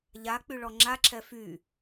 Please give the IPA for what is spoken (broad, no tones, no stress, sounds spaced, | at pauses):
ʎ a k͡p y ɭ ɔ ŋ͡ǁ a ǁʰ ɛ f y